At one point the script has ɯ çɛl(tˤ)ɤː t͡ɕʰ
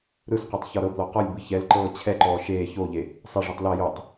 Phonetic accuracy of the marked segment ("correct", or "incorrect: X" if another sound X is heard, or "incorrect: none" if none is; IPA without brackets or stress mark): incorrect: ǃ